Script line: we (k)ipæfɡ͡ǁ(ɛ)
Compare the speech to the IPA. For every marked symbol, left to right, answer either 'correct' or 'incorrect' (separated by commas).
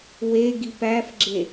incorrect, incorrect